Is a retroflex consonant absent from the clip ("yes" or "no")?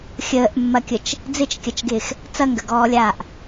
yes